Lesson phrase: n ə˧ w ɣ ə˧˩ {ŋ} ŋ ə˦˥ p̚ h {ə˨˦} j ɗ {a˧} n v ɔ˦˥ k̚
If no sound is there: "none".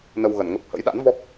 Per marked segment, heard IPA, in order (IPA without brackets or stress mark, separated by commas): n, ə̰˧˥, a̰˧˥